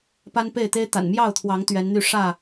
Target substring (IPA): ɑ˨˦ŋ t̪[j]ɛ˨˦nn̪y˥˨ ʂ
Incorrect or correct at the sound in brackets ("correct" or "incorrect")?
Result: incorrect